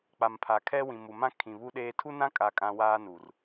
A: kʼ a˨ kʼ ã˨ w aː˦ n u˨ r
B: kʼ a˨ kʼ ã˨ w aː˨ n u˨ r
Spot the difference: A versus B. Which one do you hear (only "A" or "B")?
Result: A